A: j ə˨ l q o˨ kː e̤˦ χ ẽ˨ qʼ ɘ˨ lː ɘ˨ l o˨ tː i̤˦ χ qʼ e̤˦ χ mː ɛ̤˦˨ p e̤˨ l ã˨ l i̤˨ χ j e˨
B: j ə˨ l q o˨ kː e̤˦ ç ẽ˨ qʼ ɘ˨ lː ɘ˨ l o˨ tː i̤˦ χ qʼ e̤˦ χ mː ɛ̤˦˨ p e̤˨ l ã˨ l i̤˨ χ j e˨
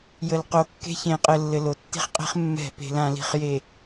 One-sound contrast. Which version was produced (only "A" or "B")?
B